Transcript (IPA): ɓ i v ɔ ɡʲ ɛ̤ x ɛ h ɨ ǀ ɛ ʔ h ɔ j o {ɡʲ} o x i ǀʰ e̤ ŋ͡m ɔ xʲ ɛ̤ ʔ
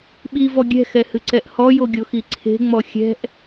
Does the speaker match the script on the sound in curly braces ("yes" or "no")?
yes